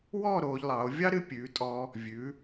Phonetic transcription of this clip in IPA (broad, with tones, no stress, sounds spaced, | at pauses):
w ɔː˥˧ ɾ oː˩˧ ʎ lˠ ɑ˩˧ o̯ vʲ ɑ˥ ɾ ɨ˧ pʲ ʉː˩˧ tʼ ɔː˧ | vʲ ʉː˩˧